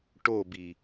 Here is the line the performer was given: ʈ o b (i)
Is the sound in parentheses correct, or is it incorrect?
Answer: correct